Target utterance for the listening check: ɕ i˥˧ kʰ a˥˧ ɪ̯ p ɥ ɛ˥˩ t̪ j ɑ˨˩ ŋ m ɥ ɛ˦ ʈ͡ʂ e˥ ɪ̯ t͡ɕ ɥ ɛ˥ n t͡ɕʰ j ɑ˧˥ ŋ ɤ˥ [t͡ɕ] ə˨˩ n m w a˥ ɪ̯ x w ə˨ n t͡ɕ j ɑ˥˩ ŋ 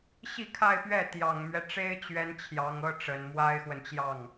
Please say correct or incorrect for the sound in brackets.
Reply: incorrect